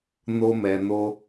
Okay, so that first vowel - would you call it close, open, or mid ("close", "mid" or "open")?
mid